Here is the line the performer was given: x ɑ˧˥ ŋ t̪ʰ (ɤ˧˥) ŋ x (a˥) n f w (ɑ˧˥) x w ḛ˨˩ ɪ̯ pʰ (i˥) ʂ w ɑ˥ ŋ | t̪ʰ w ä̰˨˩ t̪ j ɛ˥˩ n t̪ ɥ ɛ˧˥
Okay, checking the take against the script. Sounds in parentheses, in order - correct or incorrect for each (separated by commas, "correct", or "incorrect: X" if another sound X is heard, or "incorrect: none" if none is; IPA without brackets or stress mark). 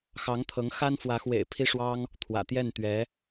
correct, correct, incorrect: ä˧˥, correct